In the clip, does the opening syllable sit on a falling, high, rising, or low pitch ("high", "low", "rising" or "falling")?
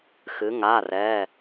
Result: rising